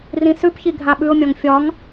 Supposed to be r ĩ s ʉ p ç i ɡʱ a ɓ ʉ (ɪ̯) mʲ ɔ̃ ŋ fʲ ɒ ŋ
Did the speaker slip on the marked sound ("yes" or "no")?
yes